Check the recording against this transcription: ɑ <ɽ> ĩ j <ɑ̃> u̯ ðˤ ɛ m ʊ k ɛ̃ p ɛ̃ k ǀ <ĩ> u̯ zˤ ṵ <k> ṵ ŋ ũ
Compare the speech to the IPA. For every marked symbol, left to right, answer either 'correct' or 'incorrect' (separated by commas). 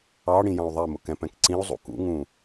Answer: correct, correct, correct, correct